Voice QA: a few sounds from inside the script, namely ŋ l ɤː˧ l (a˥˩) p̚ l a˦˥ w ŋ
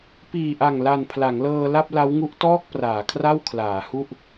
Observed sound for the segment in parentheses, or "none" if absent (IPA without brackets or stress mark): a˥˩